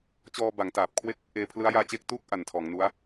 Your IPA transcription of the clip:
t͡ɕ ɔː˧ b a˩˦ ŋ t aː˨˩ p̚ kʰ w e˥˩ k̚ | ʔ eː˧ pʰ l ɯ˦˥ a̯ j aː˦˥ t͡ɕ e˦˥ k̚ t u˥˩ k̚ ʔ a˨˩ n tʰ ɔː˩˦ ŋ n u˦˥ a̯

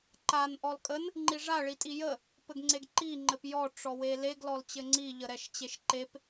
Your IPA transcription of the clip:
ǃ a n ʔ ɔ l kʼ ə n | ŋ͡ǃ i ʐ a ɭ i tʼ i j ə | p ɘ ɡ ŋ͡ǀ e ɡ ǃ i ŋ͡ǃ ɘ p j ɔ ʈ͡ʂ ɔ w e l e ɡ l ɔ l t͡ɕ ɘ ŋ͡ǀ i ʎ ə ɾ ɛ ʃ t͡ɕ e ʃ ǃ e p

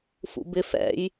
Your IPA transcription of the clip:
f ṵ b ɪ f ɛ̰ j

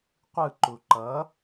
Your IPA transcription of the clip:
qʷ ɯ ǃ u ǃ ʌ

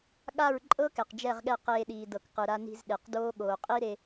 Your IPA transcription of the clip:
ɠ a˦˨ ɹ ǃʼ ɤ˦ k ɛ˨ q d͡ʒ ɛ˦˨ ʁ ɠ ɛ˦˨ q eː˧ ɗ iː˨ d ɤ˨ k q ɯ˨ ɾ a˧ n i̤˧ z ɗ e˨ q d oː˦ ɠ oː˨ qʼ i˦ ɾ e˧

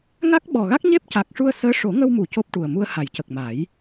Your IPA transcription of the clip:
ŋ a˦˥ k̚ ɓ ɔ˨˩ ɣ a˦˥ k̚ ɲ e˦˥ p̚ c a˨˩ k̚ ʂ u˧ ə̯ s əː˧˥ ʂ o˨˩˦ ŋ ə˧ w m u˨˩˨ c o˦˥ p̚ ʈ u˨˩ ə̯ m u˧ ə̯ h a˨˩˨ j c ə˨˩ k̚ m a˨˩˦ j

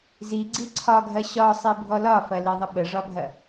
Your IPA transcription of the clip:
z i ɡ͡ǀ i ǀʰ ɒ ɡʱ ɐ ɕ ɒ sˤ i bʱ ɔ l ɒ f ɐ l i ðˤ ə ɓ ə ʐ ɒ bʱ ɐ

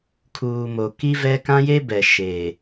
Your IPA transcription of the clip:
kʰ uː˨ m o˨ k i˦ v ɛ˦ k ã˦ j e˦ b ɛ˨ ʃ eː˨

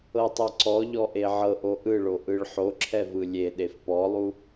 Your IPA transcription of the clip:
ɤ tˤ ɛ ǀ ɔ ʎ ɔ ʔ e ʕ ɤ ʔ o ʔ ɯ ɭ o ʔ ɯ ɭ ħ o ǁʰ ɛ v ɯ lʲ e ɗ e f p ɔ lˠ u

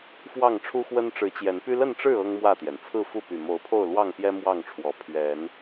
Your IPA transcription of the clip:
f w ɑ˥˨ ŋ ʈ͡ʂʰ u˦ x w ə˦ n ʈ͡ʂ ɻ̩˨˦ t͡ɕ j ɛ˨˦ n p y˦ l ə˥˨ n ʈ͡ʂ ɻ̩˥˨ ɤ˦ ŋ m w ä˥˨ t̪ j ɛ˩ n t͡sʰ ɹ̩˥˨ f u˥˨ p y˨˩ m o˨˦ ʊ̯ pʰ o˥˨ ʊ̯ l w ɑ˥˨ ŋ p j ɛ˦ m w ɑ˥˨ ŋ ʈ͡ʂʰ w ɔ˨˦ pʰ ɥ ɛ˨˦ n

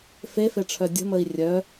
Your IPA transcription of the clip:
f e f e ʈ͡ʂʰ œ dʲ ə̤ m ə i̯ rʲ œ

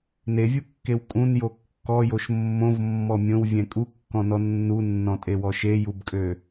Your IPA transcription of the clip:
n e vʲ u kː e w kʼ ũ n j o kː ɔ j o ʃ mː õ v mː ɔ mʲ õ w vʲ ɛ̃ kʼ u kː ɔ̃ n ɔ nː u nː ɔ̃ tʼ e w ɔ ʃ e j u b kʼ ø

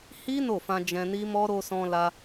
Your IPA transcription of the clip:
h i˦ n o˦˨ f ã˧ d͡ʒ ɛ̃˧ n i˦ m ɔ˦ ɾ o˧ s ɔ̃˧ l a˧

